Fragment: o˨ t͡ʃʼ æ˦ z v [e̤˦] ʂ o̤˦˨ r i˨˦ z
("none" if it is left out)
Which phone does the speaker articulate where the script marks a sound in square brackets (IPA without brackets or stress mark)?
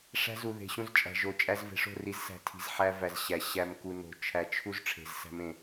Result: e̤˨